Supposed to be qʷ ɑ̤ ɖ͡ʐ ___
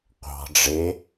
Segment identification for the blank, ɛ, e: e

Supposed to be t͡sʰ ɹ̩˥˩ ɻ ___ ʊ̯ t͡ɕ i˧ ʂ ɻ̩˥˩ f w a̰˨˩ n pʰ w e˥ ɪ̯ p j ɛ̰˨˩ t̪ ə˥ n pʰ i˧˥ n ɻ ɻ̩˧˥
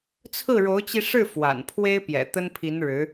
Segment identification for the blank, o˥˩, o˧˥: o˧˥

